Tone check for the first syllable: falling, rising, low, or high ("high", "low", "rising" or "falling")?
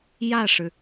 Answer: falling